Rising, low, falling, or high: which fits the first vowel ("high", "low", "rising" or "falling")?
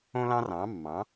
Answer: high